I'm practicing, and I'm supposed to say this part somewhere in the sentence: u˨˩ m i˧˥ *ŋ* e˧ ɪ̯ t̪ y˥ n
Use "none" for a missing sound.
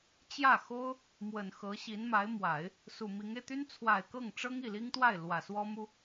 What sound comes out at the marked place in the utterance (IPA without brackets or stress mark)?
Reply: ŋ